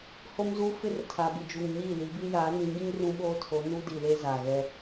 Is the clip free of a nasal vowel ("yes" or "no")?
no